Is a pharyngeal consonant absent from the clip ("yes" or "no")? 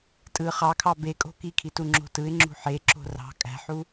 no